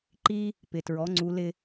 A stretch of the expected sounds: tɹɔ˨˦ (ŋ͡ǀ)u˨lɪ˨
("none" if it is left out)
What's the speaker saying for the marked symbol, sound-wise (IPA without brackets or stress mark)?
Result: ŋ͡ǀ